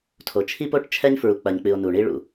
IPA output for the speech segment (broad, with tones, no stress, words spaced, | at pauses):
tʰo˨ t͡ʃʰi˦po˦ʈt͡ʃʰɛ˦ɲ fɹu˨k͡pɐ˨ɲk͡pɨ˨o̯ nu˨ɳi˦ɭṵ˨